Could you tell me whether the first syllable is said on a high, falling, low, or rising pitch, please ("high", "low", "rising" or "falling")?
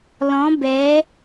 rising